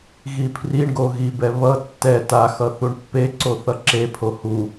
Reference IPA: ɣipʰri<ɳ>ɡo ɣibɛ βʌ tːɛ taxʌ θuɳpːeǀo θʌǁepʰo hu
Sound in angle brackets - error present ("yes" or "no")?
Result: no